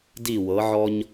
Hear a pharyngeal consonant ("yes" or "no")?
yes